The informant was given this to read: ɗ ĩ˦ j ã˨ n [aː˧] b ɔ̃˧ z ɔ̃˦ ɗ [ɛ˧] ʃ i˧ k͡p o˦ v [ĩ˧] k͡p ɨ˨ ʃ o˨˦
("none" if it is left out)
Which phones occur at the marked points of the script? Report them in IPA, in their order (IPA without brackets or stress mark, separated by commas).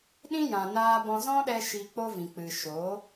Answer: aː˧, ɛ˧, ĩ˨